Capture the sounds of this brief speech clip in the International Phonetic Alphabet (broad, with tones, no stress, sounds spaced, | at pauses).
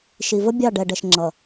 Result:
ʃ i˨ v ə˦ bʲ ɑ˦˨ ɖ ɛ˨ ɖ ɛ˨ ʃ ŋ͡ǁ ʌ˨